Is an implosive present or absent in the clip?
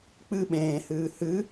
present